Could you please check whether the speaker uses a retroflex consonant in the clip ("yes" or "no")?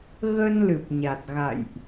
no